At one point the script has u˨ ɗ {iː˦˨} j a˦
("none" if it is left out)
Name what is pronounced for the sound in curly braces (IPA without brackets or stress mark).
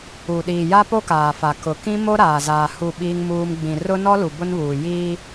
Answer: iː˨